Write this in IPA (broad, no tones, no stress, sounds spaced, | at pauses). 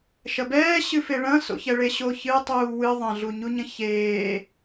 ʃ ɐ b ɛː ɕ ɨ f e ɭ ɐ̃ s o̰ ç ɛ ɭ e ɕ o ç ɨ tˤ uː w ɨ ðˤ ɐ̃ ɮ u ɲ u ɲ ɐ̃ ç eː